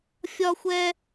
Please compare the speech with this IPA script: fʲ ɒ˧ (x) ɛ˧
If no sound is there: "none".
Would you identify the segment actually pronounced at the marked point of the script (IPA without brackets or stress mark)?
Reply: xʷ